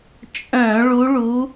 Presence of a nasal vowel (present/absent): present